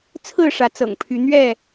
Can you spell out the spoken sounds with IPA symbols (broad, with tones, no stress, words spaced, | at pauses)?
t͡sʰɹ̩˥˨ʂä˨˦t͡sɤ̰˨˩ŋ pʰy˨˦ n̪ɥɛ˥˨